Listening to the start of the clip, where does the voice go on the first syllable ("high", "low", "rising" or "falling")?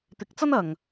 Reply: rising